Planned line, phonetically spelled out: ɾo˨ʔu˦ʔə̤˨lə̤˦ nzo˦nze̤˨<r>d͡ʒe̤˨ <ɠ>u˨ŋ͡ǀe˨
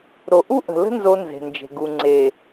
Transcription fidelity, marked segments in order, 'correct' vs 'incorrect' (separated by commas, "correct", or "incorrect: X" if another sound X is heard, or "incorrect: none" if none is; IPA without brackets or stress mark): incorrect: n, incorrect: ɡ